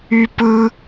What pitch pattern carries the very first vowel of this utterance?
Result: high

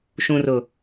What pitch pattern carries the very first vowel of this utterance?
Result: low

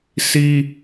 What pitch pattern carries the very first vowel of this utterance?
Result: high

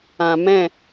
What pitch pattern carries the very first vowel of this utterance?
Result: low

